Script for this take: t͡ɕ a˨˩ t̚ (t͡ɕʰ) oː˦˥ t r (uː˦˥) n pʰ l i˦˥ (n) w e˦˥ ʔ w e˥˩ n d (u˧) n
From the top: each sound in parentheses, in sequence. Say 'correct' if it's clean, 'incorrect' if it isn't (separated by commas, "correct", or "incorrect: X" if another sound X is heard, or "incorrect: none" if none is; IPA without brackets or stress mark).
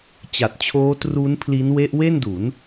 correct, correct, correct, incorrect: u˩˦